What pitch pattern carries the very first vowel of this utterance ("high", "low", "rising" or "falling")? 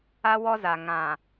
high